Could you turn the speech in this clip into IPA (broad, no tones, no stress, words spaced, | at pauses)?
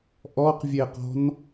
ʔɔqvʲeqɔ̤n